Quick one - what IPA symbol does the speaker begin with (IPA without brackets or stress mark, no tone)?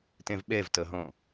t